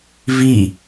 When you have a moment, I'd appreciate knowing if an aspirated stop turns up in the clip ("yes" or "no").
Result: no